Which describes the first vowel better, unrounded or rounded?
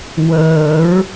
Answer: unrounded